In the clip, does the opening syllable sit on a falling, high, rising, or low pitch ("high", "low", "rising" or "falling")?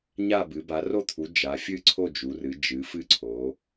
falling